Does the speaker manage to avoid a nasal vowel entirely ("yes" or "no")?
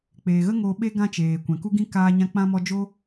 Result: no